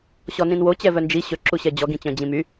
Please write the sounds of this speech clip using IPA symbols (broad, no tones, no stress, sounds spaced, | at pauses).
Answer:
ɕ ɔ n ĩ n w o t͡ɕ ɛ v œ n d͡ʒ i ɕ ɵ ǁ u ɕ ɛ d͡ʑ ɔ ɡ ĩ t͡ɕ œ̃ d͡ʑ ĩ m y